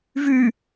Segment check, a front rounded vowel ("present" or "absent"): present